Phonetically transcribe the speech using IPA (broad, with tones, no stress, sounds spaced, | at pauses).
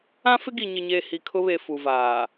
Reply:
ã˦ f ɪ˦ ɡ i˨ ɲ ɪ˨ ɲ e˨ h i˨ kʰ ʊ˦ β e˨ f u˨ v aː˨